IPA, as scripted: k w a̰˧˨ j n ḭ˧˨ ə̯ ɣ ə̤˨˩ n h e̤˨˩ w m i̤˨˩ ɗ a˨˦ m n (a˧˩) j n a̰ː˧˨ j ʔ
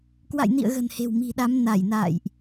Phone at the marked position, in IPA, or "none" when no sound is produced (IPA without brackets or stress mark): a˧˩